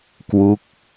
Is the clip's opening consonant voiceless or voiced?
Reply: voiceless